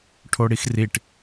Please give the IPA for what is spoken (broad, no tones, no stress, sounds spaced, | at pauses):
ʈʰ o ɽ i x r i ʈ